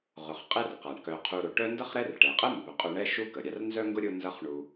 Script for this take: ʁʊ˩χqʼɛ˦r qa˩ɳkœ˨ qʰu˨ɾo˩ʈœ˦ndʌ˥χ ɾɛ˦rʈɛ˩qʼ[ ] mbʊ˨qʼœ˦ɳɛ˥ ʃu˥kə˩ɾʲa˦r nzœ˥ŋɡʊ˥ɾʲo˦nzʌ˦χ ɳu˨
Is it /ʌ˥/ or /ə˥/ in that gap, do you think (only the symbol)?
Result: ə˥